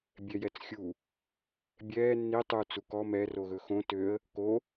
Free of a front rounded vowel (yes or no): no